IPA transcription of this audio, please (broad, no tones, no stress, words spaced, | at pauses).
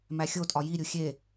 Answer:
mæxʲotʼɒ jiɾʲu xʲe